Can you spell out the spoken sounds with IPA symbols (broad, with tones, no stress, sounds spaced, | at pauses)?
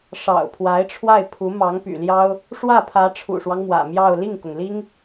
ʂ ɑ̰˨˩ ʊ̯ pʰ w a˧˥ ɪ̯ ʈ͡ʂʰ w a˥˩ ɪ̯ pʰ u˧˥ m ɑ˧˥ ŋ p y̰˨˩ l j ɑ˥ ʊ̯ | ʂ w ä˥˩ pʰ ä˧˥ ʈ͡ʂʰ ṵ˨˩ ʂ w ɑ˦ ŋ m w ä̰˨˩ m j ɑ˥˧ ʊ̯ l i˥˩ ŋ k ʊ˩ ŋ l i˥ ŋ